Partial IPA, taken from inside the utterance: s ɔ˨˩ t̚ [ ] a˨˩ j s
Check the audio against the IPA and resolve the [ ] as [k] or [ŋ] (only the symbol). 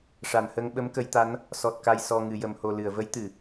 k